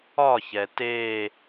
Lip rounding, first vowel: rounded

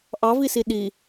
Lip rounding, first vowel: unrounded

